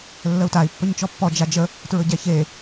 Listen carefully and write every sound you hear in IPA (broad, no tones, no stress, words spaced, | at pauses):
lːəu̯tai̯ pːɵɲt͡ʃɔpːɔ d͡ʒad͡ʒə | tɹɵɟɛçe